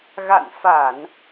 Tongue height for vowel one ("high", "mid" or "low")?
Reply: low